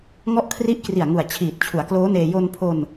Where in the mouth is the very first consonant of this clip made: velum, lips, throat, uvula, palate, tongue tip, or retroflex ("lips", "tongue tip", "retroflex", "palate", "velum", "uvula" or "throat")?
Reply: velum